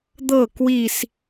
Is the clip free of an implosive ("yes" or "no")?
yes